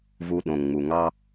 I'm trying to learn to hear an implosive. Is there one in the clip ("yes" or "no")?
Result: yes